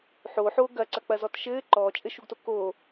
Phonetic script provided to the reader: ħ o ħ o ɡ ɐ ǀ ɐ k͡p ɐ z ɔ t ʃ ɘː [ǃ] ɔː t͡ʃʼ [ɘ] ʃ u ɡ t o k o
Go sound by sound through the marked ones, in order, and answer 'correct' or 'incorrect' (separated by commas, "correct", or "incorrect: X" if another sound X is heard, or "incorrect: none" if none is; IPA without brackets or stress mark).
correct, correct